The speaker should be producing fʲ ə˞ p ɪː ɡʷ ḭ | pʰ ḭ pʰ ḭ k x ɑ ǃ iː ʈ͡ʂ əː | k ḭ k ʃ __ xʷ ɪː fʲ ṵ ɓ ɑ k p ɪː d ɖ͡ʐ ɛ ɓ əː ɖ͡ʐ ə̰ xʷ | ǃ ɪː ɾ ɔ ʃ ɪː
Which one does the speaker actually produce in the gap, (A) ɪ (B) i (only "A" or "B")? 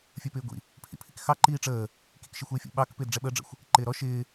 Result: A